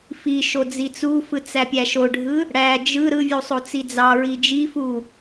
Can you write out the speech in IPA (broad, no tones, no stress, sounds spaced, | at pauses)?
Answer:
f i ʃ o d͡z i t͡s u f ɯ t͡s æ pʲ æ ʃ o ɖʱ ɯ | ɽ æ d͡ʒ ɯ ɾ ɯ vʲ u sˤ o t͡s i d͡z ɑ ɹ i d͡ʒ i f u